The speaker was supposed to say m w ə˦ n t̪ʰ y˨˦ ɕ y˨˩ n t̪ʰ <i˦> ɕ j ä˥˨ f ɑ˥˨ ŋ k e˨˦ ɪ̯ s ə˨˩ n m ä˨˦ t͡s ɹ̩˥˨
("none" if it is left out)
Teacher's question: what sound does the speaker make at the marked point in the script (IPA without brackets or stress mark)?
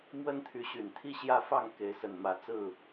i˦